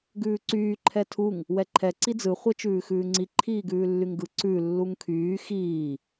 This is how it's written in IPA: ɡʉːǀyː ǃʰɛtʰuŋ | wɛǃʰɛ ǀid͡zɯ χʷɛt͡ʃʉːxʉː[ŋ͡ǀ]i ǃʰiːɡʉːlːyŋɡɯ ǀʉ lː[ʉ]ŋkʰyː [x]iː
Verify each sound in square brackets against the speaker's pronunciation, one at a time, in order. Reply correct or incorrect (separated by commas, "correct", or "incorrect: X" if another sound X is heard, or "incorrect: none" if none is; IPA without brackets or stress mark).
correct, incorrect: u, correct